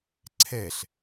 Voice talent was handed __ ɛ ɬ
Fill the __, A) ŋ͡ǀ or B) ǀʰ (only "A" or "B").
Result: B